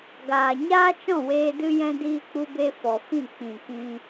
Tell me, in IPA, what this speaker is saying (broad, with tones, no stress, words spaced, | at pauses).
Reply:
ɡaː˨ɲaː˦t͡ʃɔ̃˦˨weː˧ dɨ˦jɛ̃˦ diː˦k͡pu˦be˦ fɔ˨fĩ˦˨ k͡pĩ˨kĩ˧